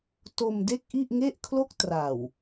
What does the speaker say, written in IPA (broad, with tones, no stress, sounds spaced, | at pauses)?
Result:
t o˧ m d e˥˩ k̚ ʔ i˥˩ ʔ ŋ e˥˩ ʔ kʰ l o˥˩ k̚ t r a˨˩ w